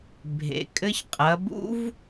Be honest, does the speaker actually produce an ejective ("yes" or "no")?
yes